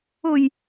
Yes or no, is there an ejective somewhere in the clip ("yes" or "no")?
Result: no